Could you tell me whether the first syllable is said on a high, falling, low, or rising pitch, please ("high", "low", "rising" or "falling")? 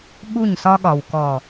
falling